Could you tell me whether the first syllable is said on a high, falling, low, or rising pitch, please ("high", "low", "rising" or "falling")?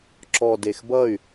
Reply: low